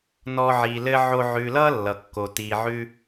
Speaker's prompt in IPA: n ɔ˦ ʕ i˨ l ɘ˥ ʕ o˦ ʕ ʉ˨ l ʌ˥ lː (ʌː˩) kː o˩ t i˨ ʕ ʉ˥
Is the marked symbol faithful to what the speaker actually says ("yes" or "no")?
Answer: no